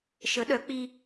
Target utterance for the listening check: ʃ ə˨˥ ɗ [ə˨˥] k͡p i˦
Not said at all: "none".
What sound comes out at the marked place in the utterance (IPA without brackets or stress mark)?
œ˨˥